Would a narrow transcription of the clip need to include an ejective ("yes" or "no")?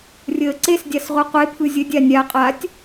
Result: yes